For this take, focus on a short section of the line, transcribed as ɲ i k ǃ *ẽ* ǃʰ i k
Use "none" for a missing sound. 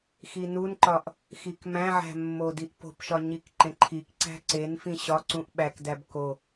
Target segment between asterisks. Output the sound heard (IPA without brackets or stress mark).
ẽ